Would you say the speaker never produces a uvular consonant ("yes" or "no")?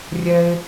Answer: yes